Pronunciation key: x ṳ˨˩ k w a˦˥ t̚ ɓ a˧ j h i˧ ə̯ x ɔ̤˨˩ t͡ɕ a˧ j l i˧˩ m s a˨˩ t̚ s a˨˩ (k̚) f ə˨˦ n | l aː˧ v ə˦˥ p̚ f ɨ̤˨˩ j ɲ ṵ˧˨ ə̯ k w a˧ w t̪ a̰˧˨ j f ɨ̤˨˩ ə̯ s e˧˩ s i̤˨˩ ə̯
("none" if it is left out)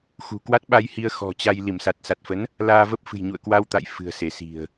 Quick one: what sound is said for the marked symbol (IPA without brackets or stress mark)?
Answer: t̚